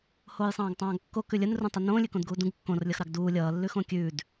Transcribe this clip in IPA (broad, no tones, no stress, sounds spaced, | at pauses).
h oː j sˤ ɑ̃ː ɡ tˤ ɑ̃ː ɡ kː o k ʉ lʲ ə n r ũ tˤ ə n õː lʲ ʉ k õ d ɡ uː d ũ ɡ kː õ r lʲ ʌ x ɾ ɑ ɡ d uː lʲ ʌː lː ʉ x õ kʲ ʉː d